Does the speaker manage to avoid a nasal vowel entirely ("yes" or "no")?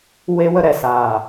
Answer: yes